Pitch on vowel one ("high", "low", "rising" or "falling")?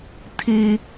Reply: high